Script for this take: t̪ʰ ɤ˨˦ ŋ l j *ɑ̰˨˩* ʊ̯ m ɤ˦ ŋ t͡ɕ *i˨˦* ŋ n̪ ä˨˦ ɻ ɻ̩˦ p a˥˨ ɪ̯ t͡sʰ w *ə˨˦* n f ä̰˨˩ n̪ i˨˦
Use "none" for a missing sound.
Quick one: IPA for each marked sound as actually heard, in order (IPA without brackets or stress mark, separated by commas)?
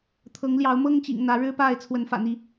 ɑ˨˦, ḭ˨˩, ə˨˦